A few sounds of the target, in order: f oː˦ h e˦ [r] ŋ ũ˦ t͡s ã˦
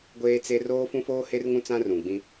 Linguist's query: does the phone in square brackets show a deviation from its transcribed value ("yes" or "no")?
no